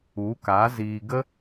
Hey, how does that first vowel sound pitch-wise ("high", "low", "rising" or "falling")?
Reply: rising